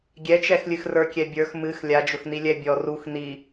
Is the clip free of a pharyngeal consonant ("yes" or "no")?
yes